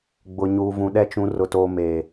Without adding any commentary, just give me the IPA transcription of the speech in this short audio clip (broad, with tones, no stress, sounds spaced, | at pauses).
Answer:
ɡ͡b ʊ˨ ɲ uː˨ v ũ˨ ɗ ɛ˦ t͡ʃ ũ˨˦ r ʊ˨ t oː˨ m eː˨